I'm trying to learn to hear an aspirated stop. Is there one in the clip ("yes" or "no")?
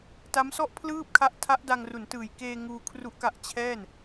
yes